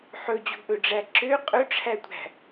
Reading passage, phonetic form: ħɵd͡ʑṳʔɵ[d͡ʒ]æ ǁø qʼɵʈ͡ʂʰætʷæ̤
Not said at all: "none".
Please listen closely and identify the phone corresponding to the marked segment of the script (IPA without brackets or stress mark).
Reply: ɖ͡ʐ